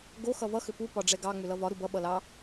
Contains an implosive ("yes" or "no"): yes